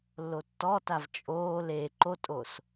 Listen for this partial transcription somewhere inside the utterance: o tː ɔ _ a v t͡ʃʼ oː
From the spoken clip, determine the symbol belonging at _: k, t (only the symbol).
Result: t